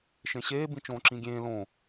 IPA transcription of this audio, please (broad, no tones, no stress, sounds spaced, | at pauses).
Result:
ʃ ẽ ɕ eː b ĩ t͡ʃ õː ǁ ĩ ɡʲ ẽː l õ